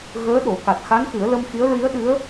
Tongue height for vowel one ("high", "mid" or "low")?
mid